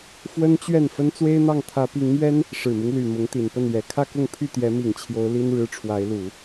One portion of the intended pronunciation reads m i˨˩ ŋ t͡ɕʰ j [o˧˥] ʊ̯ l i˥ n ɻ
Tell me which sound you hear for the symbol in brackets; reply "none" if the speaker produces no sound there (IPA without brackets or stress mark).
o˧˥